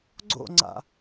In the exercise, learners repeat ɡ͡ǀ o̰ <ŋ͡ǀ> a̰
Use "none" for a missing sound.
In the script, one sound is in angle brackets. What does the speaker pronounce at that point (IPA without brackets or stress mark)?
ŋ͡ǀ